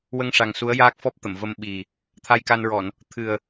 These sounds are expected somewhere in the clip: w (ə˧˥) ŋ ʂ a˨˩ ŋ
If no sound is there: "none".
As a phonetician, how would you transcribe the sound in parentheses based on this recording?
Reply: ə˧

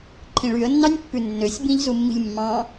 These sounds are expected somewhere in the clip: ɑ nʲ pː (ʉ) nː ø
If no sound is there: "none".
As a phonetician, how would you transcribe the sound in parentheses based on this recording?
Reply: ʉ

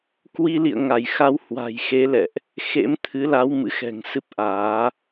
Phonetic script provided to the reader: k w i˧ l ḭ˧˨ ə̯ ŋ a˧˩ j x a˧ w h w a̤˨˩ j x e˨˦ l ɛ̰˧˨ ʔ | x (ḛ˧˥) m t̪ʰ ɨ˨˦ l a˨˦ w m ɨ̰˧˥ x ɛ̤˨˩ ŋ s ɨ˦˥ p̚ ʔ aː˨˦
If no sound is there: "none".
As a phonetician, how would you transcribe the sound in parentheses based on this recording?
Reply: ḛ˧˥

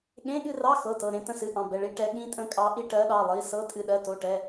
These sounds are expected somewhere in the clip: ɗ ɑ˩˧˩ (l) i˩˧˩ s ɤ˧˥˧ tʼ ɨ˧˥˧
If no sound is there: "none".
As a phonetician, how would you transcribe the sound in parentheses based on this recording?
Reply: lˠ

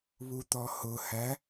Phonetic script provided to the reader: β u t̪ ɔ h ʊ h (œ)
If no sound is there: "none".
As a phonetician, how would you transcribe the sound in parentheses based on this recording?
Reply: æ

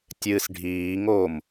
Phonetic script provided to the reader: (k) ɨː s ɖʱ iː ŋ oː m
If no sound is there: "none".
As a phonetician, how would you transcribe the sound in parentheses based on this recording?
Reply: tʲ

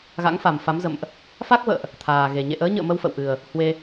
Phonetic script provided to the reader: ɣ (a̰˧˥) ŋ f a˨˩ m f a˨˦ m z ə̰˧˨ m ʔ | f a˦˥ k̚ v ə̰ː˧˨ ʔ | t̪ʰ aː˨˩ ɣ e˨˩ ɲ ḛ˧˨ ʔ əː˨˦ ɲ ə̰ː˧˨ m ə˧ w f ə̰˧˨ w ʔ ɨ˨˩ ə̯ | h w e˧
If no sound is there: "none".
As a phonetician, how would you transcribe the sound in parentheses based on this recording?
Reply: a̰˧˥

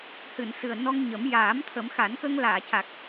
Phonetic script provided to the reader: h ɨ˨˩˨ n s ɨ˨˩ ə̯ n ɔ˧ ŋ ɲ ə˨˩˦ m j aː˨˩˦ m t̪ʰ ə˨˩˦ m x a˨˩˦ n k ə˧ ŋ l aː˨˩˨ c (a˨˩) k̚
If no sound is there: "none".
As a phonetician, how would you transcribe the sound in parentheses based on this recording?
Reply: a˨˩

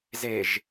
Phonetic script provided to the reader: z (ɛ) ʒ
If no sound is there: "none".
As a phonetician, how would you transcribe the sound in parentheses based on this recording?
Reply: e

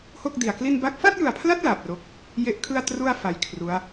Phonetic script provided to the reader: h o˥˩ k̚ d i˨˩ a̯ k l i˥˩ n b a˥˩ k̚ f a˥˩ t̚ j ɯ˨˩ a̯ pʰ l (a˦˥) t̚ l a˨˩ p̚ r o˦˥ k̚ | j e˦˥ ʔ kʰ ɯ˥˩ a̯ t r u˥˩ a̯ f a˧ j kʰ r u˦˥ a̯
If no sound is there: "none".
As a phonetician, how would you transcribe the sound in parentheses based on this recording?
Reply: a˦˥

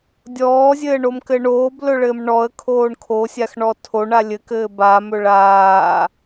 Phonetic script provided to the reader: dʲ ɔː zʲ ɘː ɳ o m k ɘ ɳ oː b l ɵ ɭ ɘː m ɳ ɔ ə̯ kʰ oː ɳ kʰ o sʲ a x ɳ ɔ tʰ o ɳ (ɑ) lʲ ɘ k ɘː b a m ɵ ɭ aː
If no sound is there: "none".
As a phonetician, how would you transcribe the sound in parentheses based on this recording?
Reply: a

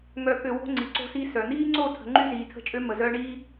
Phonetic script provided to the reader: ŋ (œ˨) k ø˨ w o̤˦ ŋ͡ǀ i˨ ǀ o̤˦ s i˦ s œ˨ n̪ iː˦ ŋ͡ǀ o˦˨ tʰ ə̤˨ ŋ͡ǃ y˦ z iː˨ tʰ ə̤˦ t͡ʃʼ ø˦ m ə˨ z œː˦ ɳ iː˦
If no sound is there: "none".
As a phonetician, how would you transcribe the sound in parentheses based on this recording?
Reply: œ˨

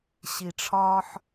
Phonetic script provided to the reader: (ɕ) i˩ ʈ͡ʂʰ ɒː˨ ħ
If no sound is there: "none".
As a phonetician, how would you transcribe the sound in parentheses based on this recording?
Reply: ɕ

